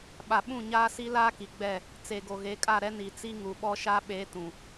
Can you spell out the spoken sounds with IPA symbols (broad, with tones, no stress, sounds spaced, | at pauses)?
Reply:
ɓ a˨ ɓ ũ˦˨ ɲ aː˦ s i˦ l aː˦ k i˨ ɡ͡b ɛ˦˨ | t͡s e˨ ɡ o˨ ɣ e˨˦ kʼ a˦˨ ɾ ɛ˦ n i˨ t͡s i˦ ŋ u˨ ɓ ɔ˦ ʃ a˦ ɓ e˨˦ t ũ˨